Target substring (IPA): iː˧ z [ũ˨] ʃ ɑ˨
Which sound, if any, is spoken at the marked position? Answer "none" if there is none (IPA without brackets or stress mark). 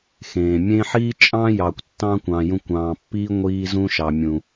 ũ˧